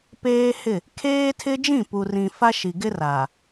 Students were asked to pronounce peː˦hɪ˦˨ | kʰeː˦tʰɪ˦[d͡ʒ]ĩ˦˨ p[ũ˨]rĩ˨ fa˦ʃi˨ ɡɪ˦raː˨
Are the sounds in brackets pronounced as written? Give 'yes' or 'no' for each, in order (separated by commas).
yes, no